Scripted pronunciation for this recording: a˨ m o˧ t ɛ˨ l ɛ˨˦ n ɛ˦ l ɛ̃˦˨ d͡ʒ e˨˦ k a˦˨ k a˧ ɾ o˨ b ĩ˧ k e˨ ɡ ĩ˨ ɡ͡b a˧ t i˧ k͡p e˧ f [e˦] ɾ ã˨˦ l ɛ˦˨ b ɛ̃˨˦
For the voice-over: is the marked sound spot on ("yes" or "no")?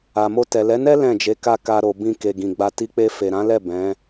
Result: no